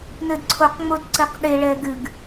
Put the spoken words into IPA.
nɘdǀʰoqŋ͡mod ǀɘqɗeɭɛ ɡɨɡ

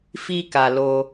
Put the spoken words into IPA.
fi˦ka˧ lo˧

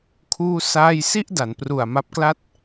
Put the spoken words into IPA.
kʰuː˥˩saː˥˩j si˥˩ʔda˩˦npru˨˩a̯ ma˦˥p̚kla˥˩t̚

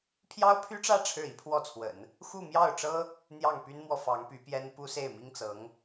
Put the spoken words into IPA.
pʰjɑ˥ʊ̯pʰy˥ʈ͡ʂä˥˧ ʈ͡ʂʰɻ̩˥˩i˥pʰwɔ˥˩t͡sʰwə̰˨˩˦n | xu˥˧mjɑ˥˩ʊ̯ʈ͡ʂɤ˥ | n̪jɑ˥˩ŋpy˥nmwɔ˨ fɑ˧˥ŋpy˧˥pjɛ˥n pu˥se˥˩ɪ̯mi˥ŋt͡sɤ˧˥ŋ

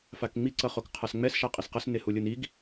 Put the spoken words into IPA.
fakŋ͡mi ǀʌχokqʰasŋ͡mɛs ʃaqʼisqʌs nehulʲɯniɡ

